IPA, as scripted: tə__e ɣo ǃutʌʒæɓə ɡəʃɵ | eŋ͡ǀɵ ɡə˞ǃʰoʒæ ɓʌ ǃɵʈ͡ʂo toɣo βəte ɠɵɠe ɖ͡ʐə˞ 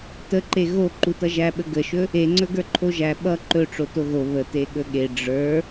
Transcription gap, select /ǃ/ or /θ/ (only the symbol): ǃ